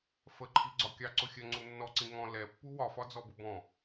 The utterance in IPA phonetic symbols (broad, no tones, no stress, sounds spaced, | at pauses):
f ə ǃʰ i ɡ͡ǀ ɒ kʲ ɑ ǀ ʊ xʲ ɜ ŋ͡ǀ u nː ɔ ǀ ĩ ŋ ɔ̃ l ɛ pː u w ɒ f ɒ d͡z ɔ b ʊ b ɔ̃